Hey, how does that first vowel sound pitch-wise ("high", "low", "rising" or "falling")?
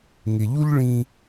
low